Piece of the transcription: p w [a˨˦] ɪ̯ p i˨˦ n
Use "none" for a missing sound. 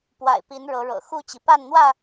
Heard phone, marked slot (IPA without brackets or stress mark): a̰˨˩